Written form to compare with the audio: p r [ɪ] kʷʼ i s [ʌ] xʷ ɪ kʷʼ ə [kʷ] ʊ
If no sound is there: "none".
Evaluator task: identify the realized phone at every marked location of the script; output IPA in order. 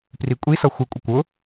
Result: i, ʌ, kʷ

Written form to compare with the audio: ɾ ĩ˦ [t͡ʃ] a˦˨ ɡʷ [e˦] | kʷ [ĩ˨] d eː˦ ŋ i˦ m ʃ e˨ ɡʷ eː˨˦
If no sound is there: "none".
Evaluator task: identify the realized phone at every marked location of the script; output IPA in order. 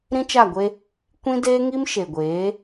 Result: t͡ʃ, e˦, ĩ˦

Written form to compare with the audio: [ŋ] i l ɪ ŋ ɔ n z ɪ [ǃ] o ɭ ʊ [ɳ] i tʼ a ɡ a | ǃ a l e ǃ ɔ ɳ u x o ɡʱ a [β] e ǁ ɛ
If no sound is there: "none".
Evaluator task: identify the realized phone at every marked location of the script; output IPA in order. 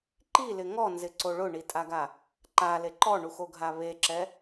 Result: ǃ, ǀ, ɳ, β

